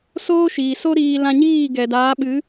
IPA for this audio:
s oː˦ ʃ iː˨ s o˦ ɾ iː˧ l ã˧ ɲ iː˦˨ ɡ ɛ˨ d aː˨˦ ɓ ɨ˨˦

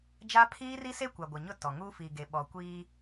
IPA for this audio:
d͡ʒ a˦ pʰ iː˦ r i˦ s e˦ kʷ a˨ ɡʷ ɪ˨ ɲ ʊ˦˨ t ɔ˨ ŋ uː˦ f i˨ ɡ e˨ ɓ ɔ˨ kʷ iː˦

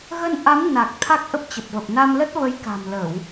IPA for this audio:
ɣ ə˧ n ʔ a˨˦ m n a˨˩ k̚ t̪ʰ a˦˥ k̚ ʔ ə˦˥ p̚ t͡ɕ ə˨˩ p̚ v ə˨˩ p̚ n a˧ m l ə˦˥ t̚ v ə˨˦ j k a̤˨˩ m l ə˧˩˨ w

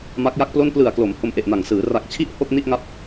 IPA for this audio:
m a˦˥ k̚ j a˥˩ k̚ p l o˥˩ n p l ɯ˨˩ a̯ k l o˩˦ m h o˧ m ʔ e˨˩ ʔ n a˨˩ ŋ s ɯː˩˦ r a˨˩ k̚ t͡ɕʰ i˦˥ ʔ h o˥˩ k̚ n i˥˩ ʔ ŋ a˦˥ p̚

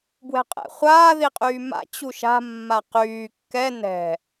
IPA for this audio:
b w ɛ̤ qʼ ɛ̰ χʷ aː ð i qʼ yː m a̰ t͡ɕ u ʃ a̤ mː a q yː kː ɛ n ɛ̤

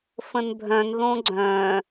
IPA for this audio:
f ə̃ n bʱ œ̃ n ð õ ɡ͡ǀ œ̃

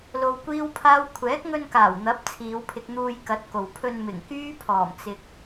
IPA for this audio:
l o˧ w kʷ iː˥ w pʰ aː˥ w kʷʰ ɛː˨˥ k̚ ŋ ɵ˧ n k aː˨˩ w n̪ ɐ˨˥ p̚ t͡sʰ iː˨˧ w pʰ ɪ˧ k̚ n̪ uː˧ j k ɐ˨˥ t̚ k o˨ w pʰ ɵ˧ n m ɪ˨˩ ŋ k yː˥ pʰ ɔː˨˩ m t͡s ɪ˨ k̚

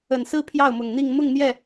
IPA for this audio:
ə˨˩ n s ɹ̩˥ pʰ j ɑ˥˩ ʊ̯ m ʊ˨˩ ŋ n̪ i˥˧ ŋ m ʊ˥˧ ŋ n̪ j ɛ˥˩

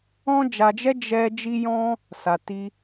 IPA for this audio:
ɔ̃˦ d͡ʒ a˧ d͡ʒ ɛ˦ d͡ʒ ɛ˧ d͡ʒ i˦ j ɔ̃˦ | s a˧ t i˦

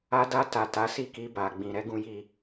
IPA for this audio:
a˧ d a˧ t a˨ t a˨˦ s i˦˨ k i˧ b a˨ ɡ͡b ĩ˨ ɾ ɛ˨˦ ɡ ũ˦ j i˦˨

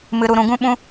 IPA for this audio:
m ɨ˧ ɾ u˧ ɾ ũ˧ ɡ ũ˦ ɓ ũ˧

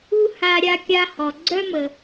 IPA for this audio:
u˥ h a˧ ɾʲ a˧ kʲ a˧ h ɔ˩ ɡ͡ǀ œ˥ m ə˩

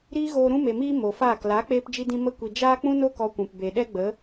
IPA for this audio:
ɾ iː˦ ɣ oː˧ ɾ ũ˦ m e˨ m iː˦ m o˨ f aː˦˨ k l a˨˦ k͡p eː˧ p d͡ʒ i˧ d ĩ˧ m ə˧ kʷ i˨ d͡ʒ aː˦ k͡p ũ˦ n o˦ k ɔ˧ kʷ ũ˨ p b e˨ ɗ ɛ˦ ɡ͡b ə˨˦

